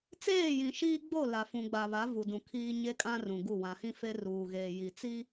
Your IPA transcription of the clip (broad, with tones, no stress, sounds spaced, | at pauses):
t͡s eː˦˨ j ĩ˨ ʃ iː˦ ɡ͡b o˦˨ l a˨ f ũ˨ ɡ͡b a˨ β a˨˦ v u˨ d ũ˨ kʰ iː˦ ɲ e˦ kʼ ã˦ r ũ˨ ɡ u˦˨ w ã˨ h ĩ˦ f e˦ r uː˨ ɣ eː˨ j i˨ t͡s i˦